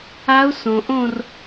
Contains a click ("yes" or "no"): no